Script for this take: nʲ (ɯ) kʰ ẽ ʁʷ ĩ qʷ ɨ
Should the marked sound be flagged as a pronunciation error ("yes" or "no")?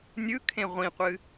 no